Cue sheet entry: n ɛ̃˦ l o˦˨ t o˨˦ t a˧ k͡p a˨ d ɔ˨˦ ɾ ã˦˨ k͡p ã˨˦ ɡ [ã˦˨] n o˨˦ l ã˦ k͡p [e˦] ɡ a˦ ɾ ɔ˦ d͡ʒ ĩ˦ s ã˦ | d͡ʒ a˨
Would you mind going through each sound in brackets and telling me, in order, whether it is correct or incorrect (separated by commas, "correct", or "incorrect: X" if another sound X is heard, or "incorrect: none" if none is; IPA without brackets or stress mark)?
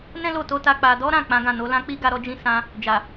correct, incorrect: i˦